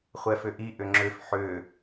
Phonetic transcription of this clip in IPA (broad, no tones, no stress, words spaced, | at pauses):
χʷɛfʏʔi ʔʏŋ͡ǁʏf ħʏː